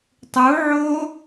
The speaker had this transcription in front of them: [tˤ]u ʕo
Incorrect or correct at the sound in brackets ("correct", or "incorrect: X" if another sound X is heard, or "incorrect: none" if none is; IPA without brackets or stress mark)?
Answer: correct